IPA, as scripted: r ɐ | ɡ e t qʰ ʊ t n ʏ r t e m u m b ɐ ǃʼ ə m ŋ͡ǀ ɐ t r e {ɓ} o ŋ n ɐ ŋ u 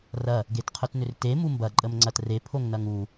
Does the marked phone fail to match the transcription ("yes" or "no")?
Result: yes